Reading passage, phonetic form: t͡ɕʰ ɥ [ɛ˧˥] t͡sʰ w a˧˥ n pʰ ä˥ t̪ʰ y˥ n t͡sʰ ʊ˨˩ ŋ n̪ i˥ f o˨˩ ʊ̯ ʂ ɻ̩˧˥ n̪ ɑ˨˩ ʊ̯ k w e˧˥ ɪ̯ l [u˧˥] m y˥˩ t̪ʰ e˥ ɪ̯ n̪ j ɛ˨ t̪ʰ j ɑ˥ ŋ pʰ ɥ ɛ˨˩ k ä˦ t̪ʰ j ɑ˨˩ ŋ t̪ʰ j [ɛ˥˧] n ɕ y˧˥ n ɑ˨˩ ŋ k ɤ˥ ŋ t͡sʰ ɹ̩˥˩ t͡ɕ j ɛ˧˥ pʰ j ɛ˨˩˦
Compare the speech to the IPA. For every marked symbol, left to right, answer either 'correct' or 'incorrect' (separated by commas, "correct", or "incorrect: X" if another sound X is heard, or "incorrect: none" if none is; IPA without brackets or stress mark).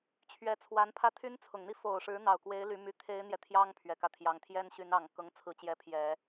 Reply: correct, incorrect: y˧˥, incorrect: ɛ˥